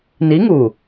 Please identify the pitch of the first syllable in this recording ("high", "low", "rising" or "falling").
rising